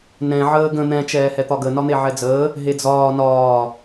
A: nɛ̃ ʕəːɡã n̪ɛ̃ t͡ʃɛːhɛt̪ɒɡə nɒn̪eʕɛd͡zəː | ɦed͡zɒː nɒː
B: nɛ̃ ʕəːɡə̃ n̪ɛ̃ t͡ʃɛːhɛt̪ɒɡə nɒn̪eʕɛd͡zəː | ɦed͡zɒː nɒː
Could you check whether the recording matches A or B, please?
B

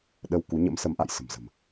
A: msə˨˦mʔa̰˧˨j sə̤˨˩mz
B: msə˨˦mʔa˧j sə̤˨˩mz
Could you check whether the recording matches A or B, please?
A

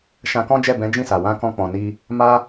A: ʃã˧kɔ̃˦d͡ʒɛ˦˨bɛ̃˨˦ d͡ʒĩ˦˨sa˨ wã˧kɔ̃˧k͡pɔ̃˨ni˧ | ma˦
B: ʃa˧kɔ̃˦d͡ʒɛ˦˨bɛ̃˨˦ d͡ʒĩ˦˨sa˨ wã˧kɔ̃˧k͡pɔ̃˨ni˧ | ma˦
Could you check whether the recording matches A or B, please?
A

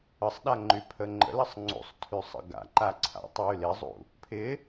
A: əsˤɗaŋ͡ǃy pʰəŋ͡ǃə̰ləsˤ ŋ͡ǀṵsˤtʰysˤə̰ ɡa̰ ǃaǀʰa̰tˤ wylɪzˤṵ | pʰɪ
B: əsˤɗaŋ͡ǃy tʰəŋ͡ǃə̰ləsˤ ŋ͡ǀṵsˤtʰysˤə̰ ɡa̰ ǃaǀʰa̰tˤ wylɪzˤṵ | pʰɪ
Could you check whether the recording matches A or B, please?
A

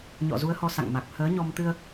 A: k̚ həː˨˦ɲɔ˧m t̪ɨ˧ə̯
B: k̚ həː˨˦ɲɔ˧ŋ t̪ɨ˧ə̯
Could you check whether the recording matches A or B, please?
A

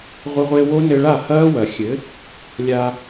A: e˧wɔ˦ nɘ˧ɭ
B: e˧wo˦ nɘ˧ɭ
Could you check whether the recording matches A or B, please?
B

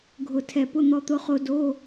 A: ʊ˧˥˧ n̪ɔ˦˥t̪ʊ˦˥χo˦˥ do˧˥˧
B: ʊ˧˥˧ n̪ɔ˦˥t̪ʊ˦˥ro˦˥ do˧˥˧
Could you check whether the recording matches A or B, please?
A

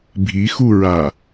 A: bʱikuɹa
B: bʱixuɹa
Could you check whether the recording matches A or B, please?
B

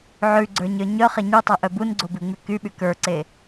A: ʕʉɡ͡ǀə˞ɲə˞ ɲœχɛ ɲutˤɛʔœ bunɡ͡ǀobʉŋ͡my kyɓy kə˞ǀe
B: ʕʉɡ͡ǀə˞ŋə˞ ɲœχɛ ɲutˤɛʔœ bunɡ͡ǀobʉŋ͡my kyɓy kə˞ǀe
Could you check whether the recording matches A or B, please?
A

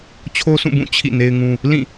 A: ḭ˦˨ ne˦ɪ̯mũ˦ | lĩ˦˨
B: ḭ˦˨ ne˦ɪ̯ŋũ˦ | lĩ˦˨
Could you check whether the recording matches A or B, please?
B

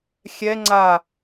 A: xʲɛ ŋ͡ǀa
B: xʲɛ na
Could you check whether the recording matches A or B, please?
A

